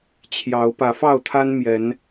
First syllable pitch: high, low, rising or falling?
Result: rising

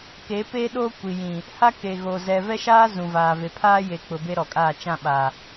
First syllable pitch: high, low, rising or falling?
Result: rising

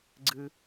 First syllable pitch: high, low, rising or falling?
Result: high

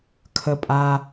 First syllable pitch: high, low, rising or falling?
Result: low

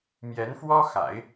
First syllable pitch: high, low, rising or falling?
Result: rising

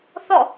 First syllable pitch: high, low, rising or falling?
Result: falling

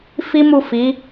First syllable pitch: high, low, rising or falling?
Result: high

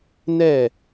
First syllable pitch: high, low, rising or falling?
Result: falling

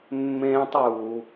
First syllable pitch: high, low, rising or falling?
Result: high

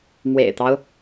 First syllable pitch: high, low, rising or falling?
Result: low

